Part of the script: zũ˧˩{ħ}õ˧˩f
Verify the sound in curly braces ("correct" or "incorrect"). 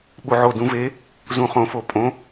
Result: incorrect